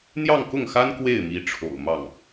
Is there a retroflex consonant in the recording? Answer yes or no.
yes